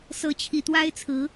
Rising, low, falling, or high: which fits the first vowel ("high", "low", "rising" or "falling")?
rising